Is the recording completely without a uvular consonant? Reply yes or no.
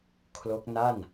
yes